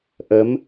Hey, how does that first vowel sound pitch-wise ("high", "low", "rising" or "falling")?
rising